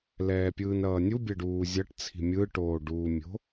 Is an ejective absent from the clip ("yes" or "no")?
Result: yes